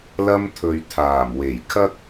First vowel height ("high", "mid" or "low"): low